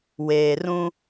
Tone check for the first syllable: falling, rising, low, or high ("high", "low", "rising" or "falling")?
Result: low